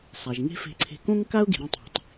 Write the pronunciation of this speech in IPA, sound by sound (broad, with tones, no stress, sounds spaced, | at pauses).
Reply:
sˤ æ˩ ʒ ŋ e̤˥ f e̤˧ ǀʰ e̤˧ k õ˥ ŋ k a˥ ʊ̯ ɡ i̤˩ ɾ ĩ˧ tˤ i̤˩ tˤ